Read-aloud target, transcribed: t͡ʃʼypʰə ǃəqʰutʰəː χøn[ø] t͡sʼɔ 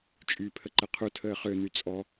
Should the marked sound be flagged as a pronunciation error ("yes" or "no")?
yes